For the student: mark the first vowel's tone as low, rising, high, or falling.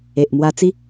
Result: low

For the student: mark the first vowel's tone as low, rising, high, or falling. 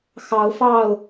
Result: rising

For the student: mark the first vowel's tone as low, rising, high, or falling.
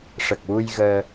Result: low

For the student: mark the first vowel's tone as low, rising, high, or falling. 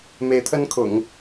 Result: rising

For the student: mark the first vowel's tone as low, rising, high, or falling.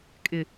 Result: low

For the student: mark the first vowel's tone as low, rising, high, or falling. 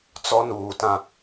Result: high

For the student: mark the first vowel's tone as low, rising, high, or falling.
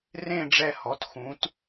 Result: falling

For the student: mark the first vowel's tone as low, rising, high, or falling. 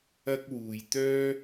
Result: high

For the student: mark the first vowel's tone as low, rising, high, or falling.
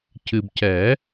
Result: low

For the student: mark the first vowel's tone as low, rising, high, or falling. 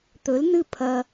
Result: rising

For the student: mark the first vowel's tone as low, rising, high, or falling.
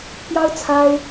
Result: high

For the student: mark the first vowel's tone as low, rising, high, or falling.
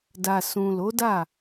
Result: low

